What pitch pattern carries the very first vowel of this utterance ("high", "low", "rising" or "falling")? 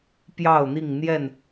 falling